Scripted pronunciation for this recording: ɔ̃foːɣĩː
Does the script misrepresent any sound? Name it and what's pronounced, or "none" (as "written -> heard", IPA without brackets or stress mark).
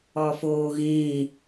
ɔ̃ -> ɔ